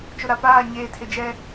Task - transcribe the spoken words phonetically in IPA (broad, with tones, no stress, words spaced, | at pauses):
t͡ʃʊ˨ɾa˨ paː˦˨ ɲeː˨tʰɪ˨ d͡ʒɛ˦